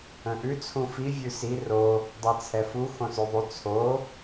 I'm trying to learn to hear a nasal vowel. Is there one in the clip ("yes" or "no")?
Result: yes